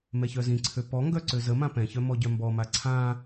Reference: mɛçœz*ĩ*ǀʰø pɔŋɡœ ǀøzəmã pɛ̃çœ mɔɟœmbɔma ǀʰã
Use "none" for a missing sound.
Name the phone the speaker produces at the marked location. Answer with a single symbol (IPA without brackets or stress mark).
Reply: ĩ